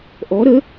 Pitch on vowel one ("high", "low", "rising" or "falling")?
rising